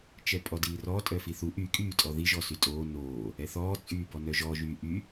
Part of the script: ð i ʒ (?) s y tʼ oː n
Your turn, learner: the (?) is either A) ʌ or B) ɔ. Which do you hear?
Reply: B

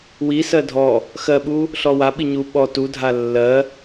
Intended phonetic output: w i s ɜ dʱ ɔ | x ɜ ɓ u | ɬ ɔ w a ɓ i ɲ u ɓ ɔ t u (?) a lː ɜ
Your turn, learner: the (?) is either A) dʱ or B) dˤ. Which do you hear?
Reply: A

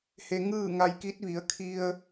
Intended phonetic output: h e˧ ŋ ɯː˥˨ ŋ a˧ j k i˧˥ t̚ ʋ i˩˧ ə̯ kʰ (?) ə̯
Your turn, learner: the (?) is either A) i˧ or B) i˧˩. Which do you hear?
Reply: A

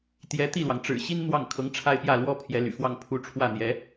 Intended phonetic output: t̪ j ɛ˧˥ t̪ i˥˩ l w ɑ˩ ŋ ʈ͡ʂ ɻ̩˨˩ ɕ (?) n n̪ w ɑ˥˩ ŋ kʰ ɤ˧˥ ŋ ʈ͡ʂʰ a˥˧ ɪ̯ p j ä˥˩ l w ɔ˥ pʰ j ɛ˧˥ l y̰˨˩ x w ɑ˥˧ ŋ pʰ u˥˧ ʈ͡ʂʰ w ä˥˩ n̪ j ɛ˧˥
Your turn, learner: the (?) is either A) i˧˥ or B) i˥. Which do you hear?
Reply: B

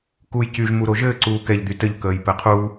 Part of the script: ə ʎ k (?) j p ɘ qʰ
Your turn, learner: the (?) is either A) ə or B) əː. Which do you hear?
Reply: B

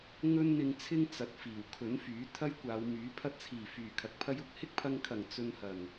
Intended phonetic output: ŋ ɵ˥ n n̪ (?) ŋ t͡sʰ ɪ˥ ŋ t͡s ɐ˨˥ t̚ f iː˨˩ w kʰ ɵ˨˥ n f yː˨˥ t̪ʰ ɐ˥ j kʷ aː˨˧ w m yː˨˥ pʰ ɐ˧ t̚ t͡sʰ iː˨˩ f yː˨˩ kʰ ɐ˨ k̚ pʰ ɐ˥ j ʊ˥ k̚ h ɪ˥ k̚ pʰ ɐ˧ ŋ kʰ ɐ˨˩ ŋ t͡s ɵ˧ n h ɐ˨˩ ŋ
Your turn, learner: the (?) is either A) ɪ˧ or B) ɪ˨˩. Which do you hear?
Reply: A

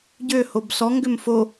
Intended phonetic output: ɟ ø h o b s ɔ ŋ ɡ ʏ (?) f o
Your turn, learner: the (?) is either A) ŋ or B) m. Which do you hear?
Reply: B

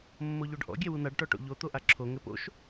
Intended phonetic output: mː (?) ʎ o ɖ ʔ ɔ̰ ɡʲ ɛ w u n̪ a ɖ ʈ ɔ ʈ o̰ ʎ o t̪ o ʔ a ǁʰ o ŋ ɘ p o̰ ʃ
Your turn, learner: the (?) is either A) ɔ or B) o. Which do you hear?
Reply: B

